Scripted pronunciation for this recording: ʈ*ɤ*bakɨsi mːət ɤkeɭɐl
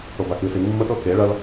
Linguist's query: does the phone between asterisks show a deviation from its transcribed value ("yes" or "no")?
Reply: yes